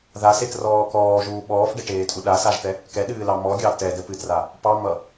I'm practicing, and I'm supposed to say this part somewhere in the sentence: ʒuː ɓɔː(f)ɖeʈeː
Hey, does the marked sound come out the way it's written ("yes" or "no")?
yes